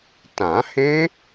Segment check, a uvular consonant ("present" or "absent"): absent